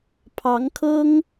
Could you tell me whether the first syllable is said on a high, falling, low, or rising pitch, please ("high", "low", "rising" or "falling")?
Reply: rising